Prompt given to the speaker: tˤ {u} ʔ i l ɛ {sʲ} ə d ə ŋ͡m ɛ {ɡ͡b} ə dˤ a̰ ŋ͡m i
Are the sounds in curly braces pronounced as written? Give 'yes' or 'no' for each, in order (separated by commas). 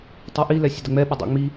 yes, yes, no